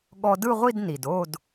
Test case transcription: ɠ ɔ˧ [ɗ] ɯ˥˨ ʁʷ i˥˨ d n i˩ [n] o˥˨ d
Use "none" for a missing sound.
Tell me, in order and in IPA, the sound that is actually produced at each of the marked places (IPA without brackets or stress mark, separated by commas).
d, d